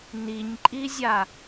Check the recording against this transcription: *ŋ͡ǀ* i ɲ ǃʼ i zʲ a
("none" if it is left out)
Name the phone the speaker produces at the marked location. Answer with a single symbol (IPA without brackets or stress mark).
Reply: n